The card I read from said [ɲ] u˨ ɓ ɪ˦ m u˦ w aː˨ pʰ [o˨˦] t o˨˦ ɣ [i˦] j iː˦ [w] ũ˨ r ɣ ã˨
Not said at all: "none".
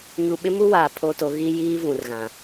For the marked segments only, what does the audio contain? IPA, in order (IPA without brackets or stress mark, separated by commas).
ɲ, o˦, i˦, v